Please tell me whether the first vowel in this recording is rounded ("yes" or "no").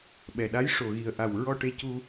no